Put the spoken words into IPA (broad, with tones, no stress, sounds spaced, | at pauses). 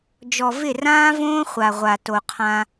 d͡ʒ ɔ˨ v ɪ˦˨ r ãː˦ v õː˦ χʷ a˨ ʁʷ a˨ t o˨ qʰ ã˦